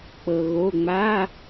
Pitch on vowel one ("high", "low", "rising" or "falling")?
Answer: low